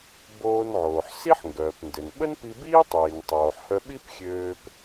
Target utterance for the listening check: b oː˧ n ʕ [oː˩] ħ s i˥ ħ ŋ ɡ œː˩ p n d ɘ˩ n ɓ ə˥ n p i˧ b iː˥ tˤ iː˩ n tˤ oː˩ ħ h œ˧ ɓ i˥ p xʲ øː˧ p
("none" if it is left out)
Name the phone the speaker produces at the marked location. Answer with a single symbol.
oː˩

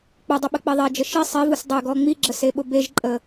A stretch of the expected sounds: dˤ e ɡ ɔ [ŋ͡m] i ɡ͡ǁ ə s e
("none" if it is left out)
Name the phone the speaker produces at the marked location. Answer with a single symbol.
ŋ͡m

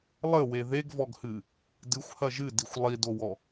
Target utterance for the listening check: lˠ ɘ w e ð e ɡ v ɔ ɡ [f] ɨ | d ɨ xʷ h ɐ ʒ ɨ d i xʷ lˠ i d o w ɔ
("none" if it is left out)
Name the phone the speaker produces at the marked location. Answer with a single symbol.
h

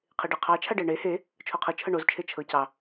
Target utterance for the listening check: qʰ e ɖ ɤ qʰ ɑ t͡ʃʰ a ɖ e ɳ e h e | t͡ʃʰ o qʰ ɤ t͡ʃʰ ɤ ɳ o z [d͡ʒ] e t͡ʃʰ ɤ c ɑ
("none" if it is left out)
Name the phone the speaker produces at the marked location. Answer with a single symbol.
t͡ʃʰ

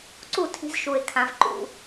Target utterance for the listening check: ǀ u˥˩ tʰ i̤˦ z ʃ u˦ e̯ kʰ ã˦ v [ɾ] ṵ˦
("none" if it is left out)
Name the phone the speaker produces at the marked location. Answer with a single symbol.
ǃ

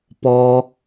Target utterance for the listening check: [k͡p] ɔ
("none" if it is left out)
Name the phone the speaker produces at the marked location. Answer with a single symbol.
p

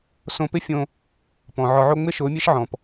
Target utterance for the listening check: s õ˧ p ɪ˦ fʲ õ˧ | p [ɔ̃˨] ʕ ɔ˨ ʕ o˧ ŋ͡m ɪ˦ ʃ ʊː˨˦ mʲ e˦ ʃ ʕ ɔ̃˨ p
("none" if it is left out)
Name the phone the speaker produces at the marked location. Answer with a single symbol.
ɔ̃˨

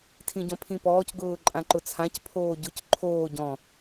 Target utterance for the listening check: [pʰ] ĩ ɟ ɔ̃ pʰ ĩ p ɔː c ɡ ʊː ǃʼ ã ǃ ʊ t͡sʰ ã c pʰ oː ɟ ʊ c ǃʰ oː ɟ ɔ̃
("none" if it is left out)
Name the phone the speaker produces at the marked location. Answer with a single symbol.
tʰ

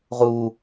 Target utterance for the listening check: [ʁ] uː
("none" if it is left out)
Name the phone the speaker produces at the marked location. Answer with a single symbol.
ʁ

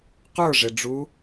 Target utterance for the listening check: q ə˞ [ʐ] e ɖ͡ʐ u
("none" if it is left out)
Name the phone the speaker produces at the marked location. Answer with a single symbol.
ʐ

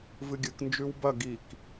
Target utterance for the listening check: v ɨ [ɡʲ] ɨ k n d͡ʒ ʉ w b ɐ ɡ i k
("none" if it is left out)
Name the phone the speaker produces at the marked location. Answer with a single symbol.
ɡʲ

